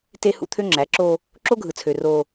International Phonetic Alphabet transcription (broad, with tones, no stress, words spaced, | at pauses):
te˦hṵ˦t̪ʰø˦ ŋ͡ǁæ˨˦ǁo˦ | ǁo˦ɡʱɯ˨t͡sʰø˨ ro˦